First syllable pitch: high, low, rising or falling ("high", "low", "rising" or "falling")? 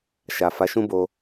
low